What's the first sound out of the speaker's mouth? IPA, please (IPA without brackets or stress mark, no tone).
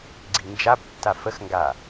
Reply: ɡ͡ǀ